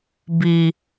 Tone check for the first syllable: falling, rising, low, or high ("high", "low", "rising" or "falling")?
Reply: low